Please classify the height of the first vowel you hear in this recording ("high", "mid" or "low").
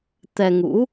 mid